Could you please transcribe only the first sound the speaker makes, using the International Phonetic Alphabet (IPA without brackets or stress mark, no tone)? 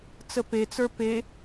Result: t͡s